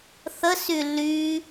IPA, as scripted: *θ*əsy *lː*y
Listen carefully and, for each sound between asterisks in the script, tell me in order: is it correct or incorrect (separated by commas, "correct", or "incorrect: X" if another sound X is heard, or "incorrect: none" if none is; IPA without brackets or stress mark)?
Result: correct, correct